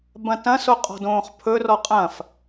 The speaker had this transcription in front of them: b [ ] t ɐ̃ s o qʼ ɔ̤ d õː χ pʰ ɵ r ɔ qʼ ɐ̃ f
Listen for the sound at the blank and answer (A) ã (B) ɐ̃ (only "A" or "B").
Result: B